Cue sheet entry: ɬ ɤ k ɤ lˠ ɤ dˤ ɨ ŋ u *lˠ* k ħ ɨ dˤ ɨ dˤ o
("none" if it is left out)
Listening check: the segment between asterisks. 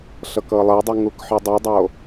none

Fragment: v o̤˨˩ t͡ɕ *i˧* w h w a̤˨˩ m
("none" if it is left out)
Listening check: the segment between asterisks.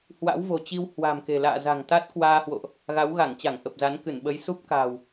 i˧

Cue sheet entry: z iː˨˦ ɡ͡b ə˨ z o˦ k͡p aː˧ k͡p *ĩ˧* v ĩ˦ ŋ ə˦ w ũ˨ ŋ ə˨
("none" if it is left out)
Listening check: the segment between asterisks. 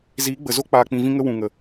ĩ˧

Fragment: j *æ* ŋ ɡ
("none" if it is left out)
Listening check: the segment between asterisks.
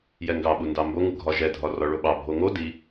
ɛ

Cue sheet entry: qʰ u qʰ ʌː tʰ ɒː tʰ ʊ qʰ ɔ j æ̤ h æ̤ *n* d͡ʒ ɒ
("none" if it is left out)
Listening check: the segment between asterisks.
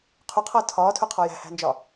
n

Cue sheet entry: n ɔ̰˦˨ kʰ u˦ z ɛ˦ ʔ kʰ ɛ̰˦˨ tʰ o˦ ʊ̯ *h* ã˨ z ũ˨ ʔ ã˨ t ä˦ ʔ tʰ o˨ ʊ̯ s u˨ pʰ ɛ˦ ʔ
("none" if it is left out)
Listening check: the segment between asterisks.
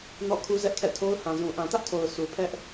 h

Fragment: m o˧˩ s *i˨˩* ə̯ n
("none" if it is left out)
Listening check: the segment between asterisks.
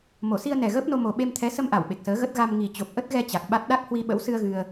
i˧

